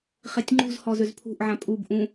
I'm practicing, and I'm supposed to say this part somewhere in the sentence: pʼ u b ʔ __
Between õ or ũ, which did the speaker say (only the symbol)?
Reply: ũ